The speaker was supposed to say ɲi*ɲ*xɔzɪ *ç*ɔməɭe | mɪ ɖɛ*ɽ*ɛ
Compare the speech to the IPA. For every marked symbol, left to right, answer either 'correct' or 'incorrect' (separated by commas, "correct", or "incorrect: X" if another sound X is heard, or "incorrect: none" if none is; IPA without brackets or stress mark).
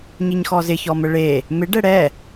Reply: correct, correct, correct